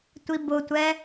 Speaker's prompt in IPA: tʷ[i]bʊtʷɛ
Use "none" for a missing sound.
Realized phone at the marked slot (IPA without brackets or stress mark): i